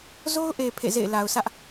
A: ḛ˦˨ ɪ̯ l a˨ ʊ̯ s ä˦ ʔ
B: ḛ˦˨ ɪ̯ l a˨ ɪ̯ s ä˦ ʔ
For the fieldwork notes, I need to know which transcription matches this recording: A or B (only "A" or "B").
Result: A